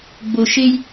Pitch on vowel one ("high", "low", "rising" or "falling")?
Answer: low